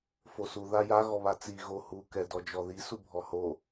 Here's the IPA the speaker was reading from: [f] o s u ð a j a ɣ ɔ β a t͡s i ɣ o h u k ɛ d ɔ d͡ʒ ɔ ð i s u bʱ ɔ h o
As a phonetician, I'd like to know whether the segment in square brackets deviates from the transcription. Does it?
no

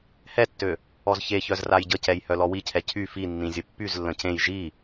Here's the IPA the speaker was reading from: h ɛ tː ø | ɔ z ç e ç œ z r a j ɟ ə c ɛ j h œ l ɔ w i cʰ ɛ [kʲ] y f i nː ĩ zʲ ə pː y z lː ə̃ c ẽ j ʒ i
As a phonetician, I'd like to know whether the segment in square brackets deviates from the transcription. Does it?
yes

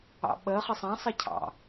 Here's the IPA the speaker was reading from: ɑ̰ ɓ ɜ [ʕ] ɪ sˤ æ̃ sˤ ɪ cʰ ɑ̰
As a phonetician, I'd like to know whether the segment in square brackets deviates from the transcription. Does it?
yes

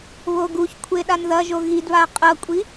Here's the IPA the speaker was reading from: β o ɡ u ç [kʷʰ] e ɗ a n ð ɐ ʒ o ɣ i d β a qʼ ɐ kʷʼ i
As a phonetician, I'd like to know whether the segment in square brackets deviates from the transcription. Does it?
no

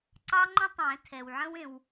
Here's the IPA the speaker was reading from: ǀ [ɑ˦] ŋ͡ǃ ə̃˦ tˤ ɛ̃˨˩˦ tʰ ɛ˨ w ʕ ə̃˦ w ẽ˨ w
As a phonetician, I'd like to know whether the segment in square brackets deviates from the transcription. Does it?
no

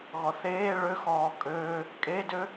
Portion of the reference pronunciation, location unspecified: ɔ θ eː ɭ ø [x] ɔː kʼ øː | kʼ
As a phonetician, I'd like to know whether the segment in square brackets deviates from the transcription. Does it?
no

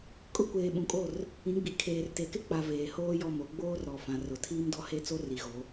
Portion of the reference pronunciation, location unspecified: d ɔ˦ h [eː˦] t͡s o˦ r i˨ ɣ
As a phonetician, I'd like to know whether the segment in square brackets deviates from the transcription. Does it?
yes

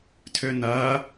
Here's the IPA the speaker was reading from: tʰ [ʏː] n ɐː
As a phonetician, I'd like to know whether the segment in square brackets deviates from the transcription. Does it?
no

